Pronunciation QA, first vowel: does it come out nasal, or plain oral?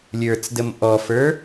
oral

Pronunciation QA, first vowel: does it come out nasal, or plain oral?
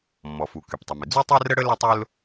oral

